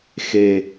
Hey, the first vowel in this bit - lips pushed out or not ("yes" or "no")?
no